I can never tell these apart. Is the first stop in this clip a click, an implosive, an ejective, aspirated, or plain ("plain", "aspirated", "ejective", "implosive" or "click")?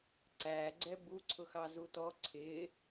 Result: click